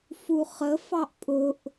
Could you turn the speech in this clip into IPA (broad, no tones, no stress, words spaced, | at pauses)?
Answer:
fuχə fɑʔpʼʊʔ